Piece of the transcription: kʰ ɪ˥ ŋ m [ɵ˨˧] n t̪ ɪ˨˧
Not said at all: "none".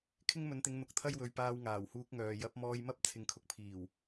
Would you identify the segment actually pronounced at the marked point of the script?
ɵ˨˧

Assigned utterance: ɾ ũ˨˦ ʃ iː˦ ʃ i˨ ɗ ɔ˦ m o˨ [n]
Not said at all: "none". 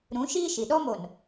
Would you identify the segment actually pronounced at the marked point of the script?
n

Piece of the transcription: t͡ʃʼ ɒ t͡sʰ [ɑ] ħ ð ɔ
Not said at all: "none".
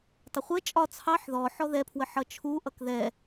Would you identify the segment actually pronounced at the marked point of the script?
ɑ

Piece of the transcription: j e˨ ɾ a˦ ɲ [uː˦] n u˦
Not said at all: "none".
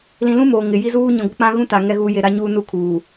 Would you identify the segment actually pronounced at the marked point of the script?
uː˦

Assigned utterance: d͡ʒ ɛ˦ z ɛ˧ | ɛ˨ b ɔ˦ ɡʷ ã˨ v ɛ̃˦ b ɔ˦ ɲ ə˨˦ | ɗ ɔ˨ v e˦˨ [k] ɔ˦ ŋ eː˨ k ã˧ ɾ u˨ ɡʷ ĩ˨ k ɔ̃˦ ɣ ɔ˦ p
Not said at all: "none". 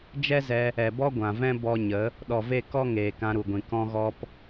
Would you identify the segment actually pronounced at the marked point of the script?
k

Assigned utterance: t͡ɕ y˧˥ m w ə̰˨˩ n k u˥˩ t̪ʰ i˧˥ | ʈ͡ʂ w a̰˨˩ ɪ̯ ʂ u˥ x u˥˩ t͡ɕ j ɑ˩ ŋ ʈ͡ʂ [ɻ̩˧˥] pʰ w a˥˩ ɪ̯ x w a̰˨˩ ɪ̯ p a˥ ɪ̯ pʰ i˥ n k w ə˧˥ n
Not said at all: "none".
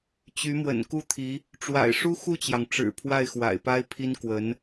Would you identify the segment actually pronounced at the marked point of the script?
ɻ̩˨˩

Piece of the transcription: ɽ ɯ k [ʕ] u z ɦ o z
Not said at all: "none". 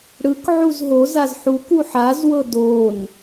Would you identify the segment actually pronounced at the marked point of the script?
ʕ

